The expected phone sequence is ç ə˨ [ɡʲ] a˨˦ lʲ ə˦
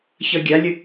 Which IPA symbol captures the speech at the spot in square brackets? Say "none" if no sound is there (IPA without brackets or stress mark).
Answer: ɡʲ